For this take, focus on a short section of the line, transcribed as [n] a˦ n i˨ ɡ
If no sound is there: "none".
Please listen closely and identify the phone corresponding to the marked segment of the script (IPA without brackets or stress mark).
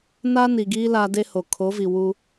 n